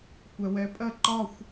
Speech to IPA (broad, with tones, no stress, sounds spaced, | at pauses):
kʷ ɛ˧ w ɛ˧˥ pʼ ɜ˥˧ ǃ ɒ˥˧ xʷ